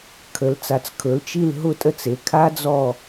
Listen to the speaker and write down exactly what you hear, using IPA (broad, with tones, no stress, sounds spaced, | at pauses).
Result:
kʰ ə˩˧ l t͡s a˩˧ t͡s kʰ ɵ˩˧ l t͡ʃ i˦˨ l ɦ ʊ˦˨ tʼ ə˦˨ t͡s e˩˧ kʰ a˦˥ d͡z ɔ˦˨